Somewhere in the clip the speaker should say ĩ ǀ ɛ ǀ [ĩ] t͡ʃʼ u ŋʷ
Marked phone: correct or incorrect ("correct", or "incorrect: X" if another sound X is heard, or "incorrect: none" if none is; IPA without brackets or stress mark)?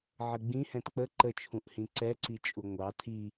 incorrect: i